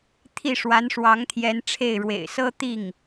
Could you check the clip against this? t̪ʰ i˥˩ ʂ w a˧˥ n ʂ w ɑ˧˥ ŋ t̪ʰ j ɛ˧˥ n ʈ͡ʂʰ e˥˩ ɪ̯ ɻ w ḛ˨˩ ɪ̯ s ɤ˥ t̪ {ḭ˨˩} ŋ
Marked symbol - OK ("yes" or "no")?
no